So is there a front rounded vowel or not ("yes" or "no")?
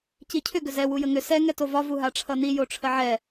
yes